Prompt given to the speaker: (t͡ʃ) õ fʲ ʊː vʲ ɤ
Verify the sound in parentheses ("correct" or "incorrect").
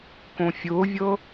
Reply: incorrect